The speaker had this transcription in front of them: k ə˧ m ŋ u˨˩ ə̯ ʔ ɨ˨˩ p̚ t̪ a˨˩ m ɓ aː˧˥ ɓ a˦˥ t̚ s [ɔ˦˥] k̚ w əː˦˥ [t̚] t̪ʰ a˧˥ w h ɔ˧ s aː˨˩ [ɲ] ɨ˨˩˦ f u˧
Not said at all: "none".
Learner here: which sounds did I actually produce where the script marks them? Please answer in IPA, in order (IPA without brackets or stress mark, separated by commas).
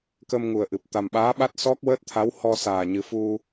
ɔ˦˥, t̚, ɲ